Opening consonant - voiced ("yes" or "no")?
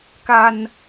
no